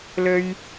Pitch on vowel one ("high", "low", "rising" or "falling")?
high